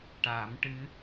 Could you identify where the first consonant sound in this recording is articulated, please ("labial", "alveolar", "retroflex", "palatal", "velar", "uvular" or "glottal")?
retroflex